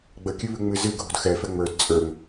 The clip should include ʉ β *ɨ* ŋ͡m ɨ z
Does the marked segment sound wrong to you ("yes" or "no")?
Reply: yes